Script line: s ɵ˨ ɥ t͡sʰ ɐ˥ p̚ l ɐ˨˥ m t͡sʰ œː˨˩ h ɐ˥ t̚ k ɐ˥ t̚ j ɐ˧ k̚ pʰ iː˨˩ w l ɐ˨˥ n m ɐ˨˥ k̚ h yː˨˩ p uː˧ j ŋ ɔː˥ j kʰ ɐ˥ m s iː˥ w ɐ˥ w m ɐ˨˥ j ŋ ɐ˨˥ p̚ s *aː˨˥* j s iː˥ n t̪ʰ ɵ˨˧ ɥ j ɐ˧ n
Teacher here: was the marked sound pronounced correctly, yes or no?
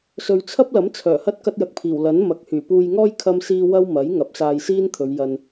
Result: no